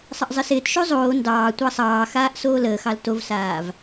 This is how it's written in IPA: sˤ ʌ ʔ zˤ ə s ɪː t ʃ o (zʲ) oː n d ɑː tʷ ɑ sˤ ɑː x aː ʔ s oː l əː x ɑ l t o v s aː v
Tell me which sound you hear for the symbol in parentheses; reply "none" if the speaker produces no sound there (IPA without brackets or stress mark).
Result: zˤ